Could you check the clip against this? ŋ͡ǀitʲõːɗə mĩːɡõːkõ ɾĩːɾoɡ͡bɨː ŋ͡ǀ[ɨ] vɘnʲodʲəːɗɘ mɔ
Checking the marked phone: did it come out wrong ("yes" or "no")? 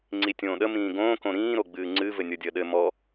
no